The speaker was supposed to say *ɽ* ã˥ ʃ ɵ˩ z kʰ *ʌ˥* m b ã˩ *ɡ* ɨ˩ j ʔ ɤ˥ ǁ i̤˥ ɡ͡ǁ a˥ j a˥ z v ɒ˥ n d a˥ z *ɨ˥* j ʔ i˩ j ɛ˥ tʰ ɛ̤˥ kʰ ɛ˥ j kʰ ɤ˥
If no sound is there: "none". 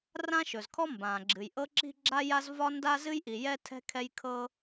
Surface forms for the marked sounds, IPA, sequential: r, ɔ˥, ɡ͡ǁ, ɨ˥

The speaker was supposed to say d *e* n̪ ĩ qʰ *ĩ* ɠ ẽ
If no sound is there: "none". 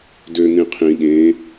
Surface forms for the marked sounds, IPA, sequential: ø, ĩ

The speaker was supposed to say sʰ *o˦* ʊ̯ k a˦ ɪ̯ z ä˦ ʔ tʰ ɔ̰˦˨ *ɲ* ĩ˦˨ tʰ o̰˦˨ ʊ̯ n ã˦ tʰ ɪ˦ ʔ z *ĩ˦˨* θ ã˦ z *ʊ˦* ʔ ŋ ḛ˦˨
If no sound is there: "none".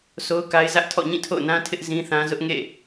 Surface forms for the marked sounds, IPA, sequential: o˦, ɲ, ĩ˦, ʊ˦

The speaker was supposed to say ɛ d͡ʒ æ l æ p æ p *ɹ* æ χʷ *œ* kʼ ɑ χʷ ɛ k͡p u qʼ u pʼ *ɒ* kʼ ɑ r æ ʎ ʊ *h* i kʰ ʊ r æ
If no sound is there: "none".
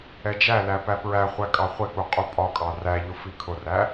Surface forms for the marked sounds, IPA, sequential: ɹ, æ, ɒ, f

